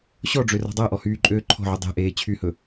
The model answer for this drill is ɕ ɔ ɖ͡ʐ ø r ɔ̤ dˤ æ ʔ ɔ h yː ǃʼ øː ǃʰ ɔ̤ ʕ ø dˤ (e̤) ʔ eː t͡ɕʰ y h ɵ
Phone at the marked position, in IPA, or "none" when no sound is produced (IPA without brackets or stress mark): e̤